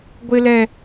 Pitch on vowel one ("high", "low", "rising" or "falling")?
high